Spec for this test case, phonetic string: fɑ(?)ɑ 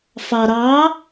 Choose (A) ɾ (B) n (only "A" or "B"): A